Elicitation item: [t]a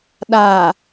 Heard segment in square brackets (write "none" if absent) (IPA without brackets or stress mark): ɗ